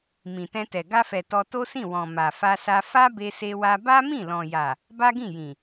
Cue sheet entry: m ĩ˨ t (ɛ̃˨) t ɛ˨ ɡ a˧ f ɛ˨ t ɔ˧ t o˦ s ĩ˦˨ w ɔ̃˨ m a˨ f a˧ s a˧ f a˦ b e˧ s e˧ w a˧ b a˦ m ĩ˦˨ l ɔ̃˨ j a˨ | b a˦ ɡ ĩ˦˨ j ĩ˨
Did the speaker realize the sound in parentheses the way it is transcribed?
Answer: no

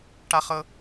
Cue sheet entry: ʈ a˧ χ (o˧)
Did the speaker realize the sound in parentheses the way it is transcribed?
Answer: no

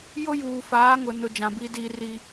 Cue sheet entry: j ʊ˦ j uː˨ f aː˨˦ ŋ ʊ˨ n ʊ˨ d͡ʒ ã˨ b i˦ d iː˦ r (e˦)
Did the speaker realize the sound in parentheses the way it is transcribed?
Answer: no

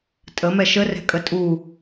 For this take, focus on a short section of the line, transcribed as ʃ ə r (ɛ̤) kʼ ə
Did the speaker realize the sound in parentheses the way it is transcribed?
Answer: yes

